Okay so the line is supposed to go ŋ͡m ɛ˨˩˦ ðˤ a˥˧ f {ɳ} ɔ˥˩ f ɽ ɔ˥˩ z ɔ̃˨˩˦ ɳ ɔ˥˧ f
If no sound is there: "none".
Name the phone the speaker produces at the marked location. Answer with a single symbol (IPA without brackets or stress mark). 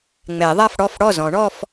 ɽ